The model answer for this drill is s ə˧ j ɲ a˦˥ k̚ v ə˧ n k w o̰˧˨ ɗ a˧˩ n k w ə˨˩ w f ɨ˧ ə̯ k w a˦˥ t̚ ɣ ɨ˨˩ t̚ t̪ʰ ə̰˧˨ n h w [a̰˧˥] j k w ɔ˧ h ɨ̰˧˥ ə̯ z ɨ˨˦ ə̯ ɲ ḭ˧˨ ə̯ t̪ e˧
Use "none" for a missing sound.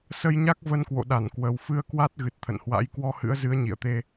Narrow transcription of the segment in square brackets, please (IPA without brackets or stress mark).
a̰˧˥